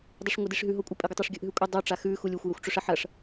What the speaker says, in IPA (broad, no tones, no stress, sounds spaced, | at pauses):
dˤ ɨ ʂ ŋʷ ɨ d i ʂ ɦ ʉ ɦ o kʷʼ ɐ pʼ e ɡʷ ɐ tˤ e ʂ ɡʲ ɵ ʔ ɦ ʉ kʷʼ ɨ dˤ o ʈ͡ʂ a x ʉ x u lʲ u xʷ j ɐ xʷ ʈ͡ʂ ɵ ʂ ɐ ħ ɐ ʂ